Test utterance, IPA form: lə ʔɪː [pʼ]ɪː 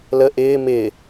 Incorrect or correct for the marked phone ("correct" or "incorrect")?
incorrect